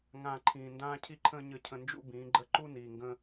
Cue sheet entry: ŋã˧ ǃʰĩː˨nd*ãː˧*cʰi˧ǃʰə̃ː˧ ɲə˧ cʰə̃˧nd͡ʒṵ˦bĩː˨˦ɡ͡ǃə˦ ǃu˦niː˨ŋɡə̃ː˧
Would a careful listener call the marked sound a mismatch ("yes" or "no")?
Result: no